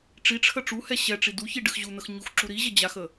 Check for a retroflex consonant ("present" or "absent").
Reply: present